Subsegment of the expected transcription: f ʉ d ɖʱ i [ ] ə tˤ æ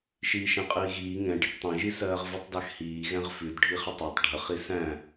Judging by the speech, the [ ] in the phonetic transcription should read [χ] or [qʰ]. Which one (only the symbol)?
χ